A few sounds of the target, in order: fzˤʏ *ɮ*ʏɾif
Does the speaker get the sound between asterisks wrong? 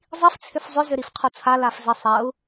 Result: yes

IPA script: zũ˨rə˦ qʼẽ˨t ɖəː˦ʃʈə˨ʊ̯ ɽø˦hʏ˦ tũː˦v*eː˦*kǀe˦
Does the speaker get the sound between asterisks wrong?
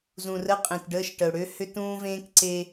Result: yes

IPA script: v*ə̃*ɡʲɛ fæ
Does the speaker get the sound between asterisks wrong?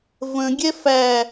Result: no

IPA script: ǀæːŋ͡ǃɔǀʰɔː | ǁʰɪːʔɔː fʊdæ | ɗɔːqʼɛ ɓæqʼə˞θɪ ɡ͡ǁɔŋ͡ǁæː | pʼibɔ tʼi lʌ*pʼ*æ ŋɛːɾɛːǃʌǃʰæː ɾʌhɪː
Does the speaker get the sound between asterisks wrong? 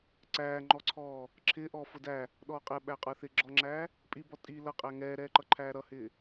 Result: yes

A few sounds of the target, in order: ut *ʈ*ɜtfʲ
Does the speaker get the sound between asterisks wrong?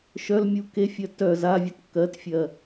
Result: yes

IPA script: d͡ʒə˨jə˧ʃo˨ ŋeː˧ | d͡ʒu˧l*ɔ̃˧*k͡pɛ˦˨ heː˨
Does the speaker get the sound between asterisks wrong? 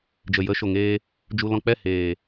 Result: no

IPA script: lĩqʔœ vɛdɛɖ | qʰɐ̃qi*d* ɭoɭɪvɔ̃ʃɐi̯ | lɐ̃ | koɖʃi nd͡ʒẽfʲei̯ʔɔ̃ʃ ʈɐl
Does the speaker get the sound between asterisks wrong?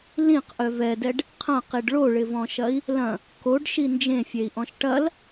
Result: yes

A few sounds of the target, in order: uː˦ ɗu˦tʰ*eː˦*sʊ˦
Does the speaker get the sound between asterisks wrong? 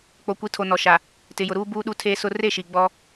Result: no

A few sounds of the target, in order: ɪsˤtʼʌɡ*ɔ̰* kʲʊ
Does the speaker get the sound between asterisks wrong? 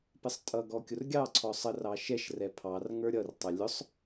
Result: yes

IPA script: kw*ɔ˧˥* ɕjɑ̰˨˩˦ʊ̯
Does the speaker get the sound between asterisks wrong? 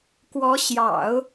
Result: no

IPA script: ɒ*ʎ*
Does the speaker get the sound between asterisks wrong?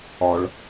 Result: yes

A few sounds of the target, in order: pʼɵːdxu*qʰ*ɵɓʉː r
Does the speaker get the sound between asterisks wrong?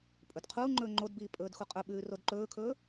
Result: yes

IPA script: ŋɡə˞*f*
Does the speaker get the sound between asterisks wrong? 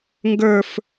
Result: no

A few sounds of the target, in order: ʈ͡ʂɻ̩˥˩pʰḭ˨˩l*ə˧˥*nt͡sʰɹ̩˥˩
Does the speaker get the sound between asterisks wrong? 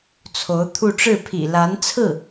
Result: yes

